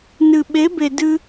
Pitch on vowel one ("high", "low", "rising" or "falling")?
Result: low